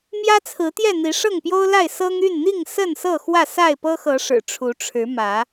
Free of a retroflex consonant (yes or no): no